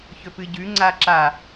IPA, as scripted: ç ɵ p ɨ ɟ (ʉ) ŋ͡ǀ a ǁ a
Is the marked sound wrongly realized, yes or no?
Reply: no